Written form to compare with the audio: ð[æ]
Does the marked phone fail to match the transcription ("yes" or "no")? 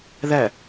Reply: no